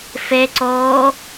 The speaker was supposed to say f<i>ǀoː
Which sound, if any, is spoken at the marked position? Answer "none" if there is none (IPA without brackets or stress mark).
e